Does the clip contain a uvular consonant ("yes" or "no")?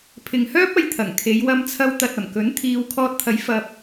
no